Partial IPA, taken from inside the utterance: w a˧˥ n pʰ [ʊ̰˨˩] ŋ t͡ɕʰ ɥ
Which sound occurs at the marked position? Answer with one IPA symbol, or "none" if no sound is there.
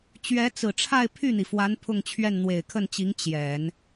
ʊ˥˧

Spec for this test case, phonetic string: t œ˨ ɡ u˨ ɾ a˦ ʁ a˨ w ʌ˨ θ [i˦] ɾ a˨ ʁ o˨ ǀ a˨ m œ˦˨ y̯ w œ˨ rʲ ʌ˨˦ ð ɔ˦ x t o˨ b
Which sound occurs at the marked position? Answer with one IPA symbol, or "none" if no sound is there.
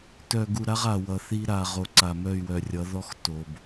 i˦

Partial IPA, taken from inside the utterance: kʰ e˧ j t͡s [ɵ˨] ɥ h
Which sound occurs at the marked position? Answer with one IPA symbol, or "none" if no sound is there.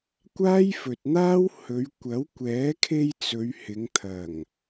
ɵ˨˧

